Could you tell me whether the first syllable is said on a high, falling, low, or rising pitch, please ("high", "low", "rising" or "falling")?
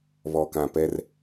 low